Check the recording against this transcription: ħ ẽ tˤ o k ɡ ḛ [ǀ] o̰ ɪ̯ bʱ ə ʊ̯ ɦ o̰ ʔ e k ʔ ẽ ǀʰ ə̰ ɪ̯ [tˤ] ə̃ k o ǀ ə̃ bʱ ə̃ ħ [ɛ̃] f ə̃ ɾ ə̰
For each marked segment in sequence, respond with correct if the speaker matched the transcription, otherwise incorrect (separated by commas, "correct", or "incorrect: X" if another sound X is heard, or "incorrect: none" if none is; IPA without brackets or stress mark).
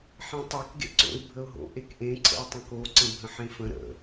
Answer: correct, correct, incorrect: ẽ